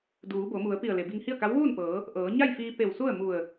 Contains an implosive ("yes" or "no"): no